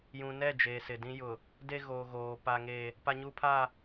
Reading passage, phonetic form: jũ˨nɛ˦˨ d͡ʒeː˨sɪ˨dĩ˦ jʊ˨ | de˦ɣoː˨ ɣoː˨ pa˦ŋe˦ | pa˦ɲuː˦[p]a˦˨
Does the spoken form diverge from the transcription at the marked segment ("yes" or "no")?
yes